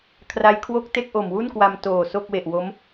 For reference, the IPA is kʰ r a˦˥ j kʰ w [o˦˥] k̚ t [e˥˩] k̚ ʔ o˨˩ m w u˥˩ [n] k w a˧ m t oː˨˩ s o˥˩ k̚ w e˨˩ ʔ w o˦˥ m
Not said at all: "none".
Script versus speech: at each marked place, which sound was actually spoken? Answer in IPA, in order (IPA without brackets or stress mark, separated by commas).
o˥˩, e˥˩, n